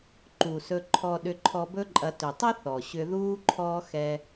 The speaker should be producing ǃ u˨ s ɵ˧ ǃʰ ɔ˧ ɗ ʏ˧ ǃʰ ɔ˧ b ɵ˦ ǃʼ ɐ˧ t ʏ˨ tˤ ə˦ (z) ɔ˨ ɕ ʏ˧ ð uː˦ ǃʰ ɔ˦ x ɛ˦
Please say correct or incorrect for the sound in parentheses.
incorrect